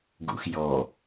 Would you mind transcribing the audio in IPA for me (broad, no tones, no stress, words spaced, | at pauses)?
ɡṵxjɔ